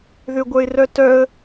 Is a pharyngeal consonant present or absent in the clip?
absent